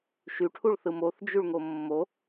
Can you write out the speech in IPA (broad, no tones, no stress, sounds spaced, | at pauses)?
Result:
ʃ y ʈʰ u ɭ θ ɯ m o θ d͡ʒ y ɭ ŋ o mː o